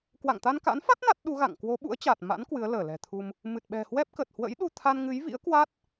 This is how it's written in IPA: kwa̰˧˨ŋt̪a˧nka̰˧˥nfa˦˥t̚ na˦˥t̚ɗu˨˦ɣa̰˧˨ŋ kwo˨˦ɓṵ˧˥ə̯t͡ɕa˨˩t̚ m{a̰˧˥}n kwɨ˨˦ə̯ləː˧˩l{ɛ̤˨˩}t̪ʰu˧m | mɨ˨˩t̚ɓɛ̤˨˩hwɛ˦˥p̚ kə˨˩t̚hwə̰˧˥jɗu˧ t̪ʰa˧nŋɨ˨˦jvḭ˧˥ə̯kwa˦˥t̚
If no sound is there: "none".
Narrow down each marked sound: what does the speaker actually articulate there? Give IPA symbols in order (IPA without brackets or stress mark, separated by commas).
a̰˧˥, ɛ̤˨˩